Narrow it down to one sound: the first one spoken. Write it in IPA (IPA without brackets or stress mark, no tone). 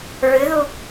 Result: ɹ